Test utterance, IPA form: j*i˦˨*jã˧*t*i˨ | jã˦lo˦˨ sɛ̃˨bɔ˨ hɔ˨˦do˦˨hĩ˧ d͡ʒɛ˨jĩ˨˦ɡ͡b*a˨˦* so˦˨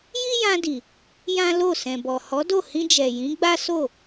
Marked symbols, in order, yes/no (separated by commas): no, no, no